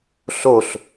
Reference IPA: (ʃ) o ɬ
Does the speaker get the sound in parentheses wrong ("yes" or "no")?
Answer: yes